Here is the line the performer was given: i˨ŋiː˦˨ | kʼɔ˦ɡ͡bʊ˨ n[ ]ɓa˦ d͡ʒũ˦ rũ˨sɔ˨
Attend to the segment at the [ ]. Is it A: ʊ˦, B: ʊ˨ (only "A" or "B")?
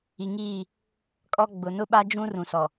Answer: A